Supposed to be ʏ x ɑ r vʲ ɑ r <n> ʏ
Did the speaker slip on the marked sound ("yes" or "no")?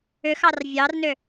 no